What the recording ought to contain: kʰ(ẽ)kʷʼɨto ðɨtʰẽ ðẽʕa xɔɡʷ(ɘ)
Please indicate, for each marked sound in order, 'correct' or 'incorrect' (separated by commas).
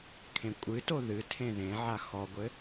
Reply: correct, correct